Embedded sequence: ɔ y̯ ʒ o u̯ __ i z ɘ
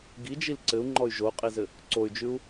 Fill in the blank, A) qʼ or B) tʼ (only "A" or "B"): A